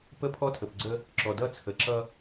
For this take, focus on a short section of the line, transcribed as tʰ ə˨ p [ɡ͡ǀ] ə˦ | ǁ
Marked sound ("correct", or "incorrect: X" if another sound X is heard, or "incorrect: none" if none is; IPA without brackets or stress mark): correct